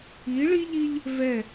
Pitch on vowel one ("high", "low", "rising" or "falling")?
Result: rising